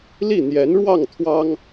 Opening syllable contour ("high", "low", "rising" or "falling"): falling